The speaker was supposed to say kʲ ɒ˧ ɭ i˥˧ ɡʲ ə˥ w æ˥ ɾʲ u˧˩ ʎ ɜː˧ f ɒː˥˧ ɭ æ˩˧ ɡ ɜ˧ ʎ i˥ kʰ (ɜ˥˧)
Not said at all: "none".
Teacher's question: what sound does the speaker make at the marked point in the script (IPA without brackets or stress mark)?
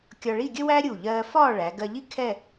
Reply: ɛ˥˧